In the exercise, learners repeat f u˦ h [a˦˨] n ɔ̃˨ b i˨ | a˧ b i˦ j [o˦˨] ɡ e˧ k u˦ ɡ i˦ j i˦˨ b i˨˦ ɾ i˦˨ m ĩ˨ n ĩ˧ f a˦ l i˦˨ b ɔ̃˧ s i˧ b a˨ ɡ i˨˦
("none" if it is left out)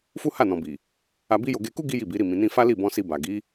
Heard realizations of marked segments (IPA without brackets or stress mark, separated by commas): a˦˨, o˧